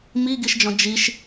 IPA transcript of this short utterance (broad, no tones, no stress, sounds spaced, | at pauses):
m i ɡ i ʃ d͡ʒ ɔ̃ d͡ʒ i ʃ